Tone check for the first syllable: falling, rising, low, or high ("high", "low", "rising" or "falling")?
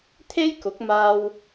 high